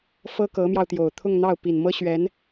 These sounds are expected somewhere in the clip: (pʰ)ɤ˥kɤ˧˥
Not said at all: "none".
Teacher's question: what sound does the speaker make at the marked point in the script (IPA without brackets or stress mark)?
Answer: f